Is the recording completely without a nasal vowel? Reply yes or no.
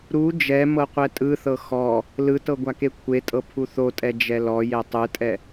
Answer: yes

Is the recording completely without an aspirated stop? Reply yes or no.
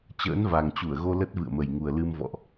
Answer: yes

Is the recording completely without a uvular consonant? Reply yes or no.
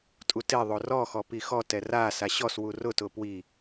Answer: yes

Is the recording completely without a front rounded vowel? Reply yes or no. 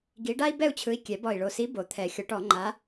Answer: yes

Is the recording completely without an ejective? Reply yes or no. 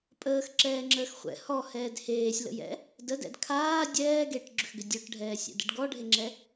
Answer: no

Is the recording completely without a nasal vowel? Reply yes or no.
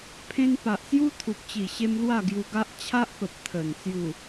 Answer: no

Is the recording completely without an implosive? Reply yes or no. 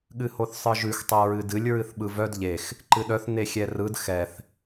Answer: no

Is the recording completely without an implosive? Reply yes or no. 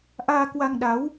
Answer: no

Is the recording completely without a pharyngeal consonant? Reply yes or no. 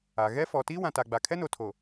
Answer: yes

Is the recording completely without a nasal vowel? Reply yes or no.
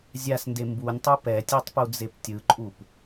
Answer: yes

